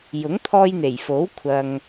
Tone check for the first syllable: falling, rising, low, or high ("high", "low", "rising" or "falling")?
rising